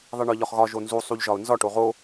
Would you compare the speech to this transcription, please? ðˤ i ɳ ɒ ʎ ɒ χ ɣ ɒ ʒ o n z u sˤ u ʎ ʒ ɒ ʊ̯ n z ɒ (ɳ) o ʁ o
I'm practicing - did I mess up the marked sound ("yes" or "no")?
yes